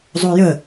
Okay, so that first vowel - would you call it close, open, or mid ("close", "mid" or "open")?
mid